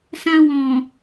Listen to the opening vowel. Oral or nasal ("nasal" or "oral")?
nasal